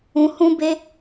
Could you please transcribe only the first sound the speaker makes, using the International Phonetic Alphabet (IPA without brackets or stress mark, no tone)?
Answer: ũ